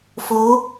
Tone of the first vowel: rising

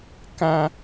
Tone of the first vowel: high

